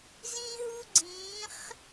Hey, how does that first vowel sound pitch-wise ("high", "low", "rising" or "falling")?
high